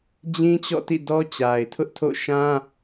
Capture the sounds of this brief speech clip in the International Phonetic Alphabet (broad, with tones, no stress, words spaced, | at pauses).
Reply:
d͡ʑĩ˦t͡ɕɔ̰˦˨tḭ˦˨ dɔ˦ t͡ɕa˨ɪ̯tʰʊ˦ʔtʰo̰˦˨ ʃã˦